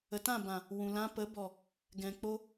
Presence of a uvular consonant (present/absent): absent